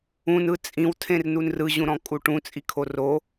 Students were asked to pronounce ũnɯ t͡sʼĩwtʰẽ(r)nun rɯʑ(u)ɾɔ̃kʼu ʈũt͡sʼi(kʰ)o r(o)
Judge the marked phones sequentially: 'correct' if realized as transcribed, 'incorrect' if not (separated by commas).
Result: correct, incorrect, correct, correct